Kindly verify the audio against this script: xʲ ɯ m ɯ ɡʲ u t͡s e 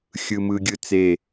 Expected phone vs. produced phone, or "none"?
u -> ɯ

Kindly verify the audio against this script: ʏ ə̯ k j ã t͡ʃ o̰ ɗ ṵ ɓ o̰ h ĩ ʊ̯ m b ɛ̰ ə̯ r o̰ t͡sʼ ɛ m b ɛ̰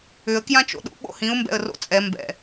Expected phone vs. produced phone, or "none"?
none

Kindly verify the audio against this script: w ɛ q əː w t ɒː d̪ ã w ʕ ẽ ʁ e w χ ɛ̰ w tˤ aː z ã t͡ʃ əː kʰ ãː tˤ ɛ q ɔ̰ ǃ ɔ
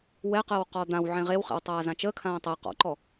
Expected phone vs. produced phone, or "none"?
t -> q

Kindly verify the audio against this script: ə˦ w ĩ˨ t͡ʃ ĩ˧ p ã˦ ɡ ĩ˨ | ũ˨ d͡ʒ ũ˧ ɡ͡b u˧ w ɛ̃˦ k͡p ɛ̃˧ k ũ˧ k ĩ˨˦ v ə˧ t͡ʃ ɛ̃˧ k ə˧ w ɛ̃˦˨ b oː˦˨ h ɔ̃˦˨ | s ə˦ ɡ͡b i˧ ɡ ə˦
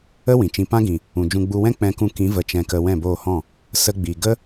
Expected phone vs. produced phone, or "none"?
none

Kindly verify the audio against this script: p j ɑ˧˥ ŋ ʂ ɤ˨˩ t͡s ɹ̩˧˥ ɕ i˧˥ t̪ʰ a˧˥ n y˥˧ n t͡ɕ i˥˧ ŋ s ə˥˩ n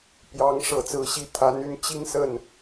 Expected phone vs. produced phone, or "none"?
none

